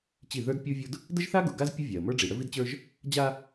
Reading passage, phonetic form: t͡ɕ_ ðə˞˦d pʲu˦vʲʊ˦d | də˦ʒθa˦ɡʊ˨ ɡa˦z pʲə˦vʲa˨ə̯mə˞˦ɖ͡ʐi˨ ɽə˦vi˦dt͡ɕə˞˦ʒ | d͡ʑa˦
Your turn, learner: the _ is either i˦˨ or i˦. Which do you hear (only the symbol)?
i˦˨